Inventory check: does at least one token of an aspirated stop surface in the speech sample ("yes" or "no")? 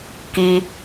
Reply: no